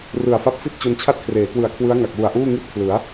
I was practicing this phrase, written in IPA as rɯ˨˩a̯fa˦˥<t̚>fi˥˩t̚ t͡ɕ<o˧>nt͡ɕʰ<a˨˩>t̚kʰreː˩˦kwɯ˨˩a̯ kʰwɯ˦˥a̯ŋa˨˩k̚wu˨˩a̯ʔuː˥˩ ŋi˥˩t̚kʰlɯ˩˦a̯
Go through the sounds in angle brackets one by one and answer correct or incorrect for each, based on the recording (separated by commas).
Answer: incorrect, correct, incorrect